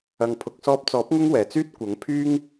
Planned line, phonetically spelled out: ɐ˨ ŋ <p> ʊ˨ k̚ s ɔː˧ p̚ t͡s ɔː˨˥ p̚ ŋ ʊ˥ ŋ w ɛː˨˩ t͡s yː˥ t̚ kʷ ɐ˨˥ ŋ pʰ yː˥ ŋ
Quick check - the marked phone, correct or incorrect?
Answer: incorrect